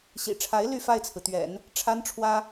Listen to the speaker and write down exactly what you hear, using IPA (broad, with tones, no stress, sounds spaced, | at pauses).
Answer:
ɕ ḭ˨˩ ʈ͡ʂʰ a˧˥ ɪ̯ l y˥˧ f a˥˩ ɪ̯ t͡sʰ ɹ̩˩ t̪ ɥ ɛ̰˨˩˦ n | ʈ͡ʂʰ a˥ n ʈ͡ʂʰ w ä˥